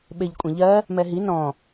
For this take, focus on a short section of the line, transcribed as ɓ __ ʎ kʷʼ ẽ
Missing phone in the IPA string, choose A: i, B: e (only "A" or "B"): B